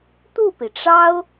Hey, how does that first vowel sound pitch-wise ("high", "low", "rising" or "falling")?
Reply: falling